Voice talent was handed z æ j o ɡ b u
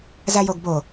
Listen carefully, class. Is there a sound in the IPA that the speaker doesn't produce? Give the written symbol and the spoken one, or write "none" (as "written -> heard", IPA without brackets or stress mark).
u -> o